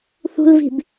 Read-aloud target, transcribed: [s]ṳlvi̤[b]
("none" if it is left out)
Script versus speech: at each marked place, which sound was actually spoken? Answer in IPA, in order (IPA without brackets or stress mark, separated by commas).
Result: θ, b